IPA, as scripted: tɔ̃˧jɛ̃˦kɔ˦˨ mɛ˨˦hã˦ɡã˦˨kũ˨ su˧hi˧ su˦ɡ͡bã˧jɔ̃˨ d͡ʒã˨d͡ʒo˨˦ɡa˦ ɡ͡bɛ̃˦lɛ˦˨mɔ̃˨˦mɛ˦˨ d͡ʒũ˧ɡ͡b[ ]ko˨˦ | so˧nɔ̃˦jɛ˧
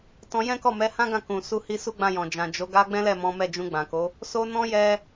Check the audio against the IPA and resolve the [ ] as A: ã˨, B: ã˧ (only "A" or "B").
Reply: A